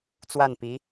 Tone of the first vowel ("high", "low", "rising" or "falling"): falling